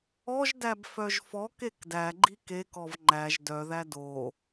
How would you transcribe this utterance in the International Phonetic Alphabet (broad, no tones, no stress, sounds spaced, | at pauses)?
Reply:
ɔ ʒ d æ b f œ ʒ f ɔ k e k d æ ɡ͡ǃ i k e k ɔ v ŋ͡ǃ æ ʒ d œ ð æ d o